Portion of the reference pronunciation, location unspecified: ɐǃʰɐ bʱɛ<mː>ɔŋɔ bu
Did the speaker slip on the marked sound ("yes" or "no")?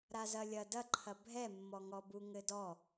no